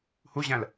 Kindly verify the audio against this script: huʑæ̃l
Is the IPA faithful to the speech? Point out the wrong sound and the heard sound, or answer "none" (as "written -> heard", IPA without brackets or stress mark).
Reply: none